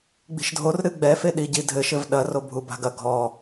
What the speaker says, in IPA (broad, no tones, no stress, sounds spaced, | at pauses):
ɡ͡b i̤ ʃ dʱ o r ɾ ɨ ɡ͡b ɛ f e ɗ i ɟ i dʱ ɘ ʃ ɘ v ɗ ɐ r o bʱ u b a̤ ɡ ɐ ɡʱ ɔ